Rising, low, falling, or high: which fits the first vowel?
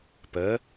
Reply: rising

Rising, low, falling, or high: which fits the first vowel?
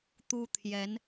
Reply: high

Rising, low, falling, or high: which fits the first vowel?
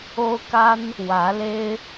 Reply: high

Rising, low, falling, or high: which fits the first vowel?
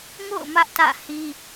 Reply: falling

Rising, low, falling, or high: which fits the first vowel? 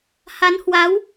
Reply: rising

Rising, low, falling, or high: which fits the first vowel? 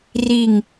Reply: falling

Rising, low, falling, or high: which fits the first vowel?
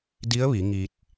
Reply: rising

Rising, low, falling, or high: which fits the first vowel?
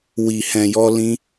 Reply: low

